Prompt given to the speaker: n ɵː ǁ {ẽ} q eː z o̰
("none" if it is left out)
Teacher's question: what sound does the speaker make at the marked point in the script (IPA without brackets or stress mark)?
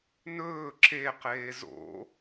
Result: e